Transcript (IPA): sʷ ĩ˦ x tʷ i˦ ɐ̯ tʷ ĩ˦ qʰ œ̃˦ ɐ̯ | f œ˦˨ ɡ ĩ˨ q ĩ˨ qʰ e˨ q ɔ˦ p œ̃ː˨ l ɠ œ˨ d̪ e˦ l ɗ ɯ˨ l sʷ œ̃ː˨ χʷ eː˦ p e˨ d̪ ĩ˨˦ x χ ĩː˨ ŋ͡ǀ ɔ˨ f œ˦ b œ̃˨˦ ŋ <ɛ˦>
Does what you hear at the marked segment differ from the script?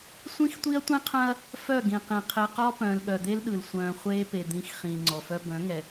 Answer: yes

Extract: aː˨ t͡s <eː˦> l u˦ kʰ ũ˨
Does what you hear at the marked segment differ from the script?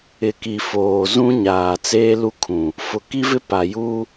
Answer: no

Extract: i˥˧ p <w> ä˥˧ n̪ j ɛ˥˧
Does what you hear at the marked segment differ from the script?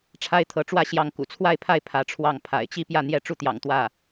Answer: yes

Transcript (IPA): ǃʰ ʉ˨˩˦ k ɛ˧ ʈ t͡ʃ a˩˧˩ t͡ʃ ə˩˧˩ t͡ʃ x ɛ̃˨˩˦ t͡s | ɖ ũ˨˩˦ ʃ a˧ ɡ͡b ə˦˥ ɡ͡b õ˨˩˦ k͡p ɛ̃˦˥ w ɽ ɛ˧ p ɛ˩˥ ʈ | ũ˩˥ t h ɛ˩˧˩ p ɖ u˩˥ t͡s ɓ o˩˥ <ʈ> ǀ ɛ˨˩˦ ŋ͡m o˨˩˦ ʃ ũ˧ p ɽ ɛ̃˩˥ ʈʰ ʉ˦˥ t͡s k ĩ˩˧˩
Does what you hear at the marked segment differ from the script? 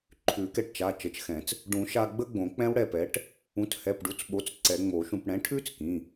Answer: yes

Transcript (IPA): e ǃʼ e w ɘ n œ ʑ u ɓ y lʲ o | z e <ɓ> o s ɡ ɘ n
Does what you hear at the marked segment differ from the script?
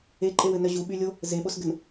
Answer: no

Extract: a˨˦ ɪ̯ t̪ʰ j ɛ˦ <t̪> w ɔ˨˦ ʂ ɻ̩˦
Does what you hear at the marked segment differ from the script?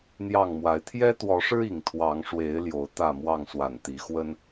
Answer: no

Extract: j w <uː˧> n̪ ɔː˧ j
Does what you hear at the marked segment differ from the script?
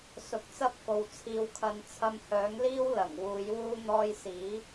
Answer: no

